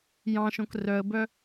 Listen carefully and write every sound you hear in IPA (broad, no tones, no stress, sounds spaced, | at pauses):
j ɑ̃ ʃ õ k r œ ə̯ b œ